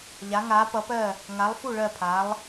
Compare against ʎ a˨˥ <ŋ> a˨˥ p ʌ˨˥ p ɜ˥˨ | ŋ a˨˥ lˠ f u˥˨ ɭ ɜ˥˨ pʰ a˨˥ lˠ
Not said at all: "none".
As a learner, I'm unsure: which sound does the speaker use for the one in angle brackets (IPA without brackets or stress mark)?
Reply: ŋ